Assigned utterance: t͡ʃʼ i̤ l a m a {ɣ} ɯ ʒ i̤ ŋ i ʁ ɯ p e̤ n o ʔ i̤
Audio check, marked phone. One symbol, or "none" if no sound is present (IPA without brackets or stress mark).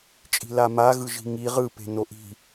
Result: ɣ